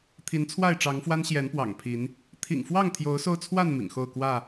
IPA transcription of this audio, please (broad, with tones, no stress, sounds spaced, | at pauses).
t̪ʰ i˨˦ n t͡sʰ w a˥˨ ɪ̯ ʈ͡ʂ ɑ˨˦ ŋ f w a˦ n ɕ j ɛ˨˦ n p w ɑ̰˨˩ ŋ pʰ i˨˦ n | t̪ʰ ḭ˨˩ ŋ f w ɑ˥˨ ŋ t̪ʰ j o˨˦ ʊ̯ s o˧ ʊ̯ t͡sʰ w a˥˨ n m ḭ˨˩ ŋ x o˥˨ ʊ̯ k w ä˥˨